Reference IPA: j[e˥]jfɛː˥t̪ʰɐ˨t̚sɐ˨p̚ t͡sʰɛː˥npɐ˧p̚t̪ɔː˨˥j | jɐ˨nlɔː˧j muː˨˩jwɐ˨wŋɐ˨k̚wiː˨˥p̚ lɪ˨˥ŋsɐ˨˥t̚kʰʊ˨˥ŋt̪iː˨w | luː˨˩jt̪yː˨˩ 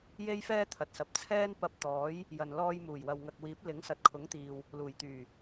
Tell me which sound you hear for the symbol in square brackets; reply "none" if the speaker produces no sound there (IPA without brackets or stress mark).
e˥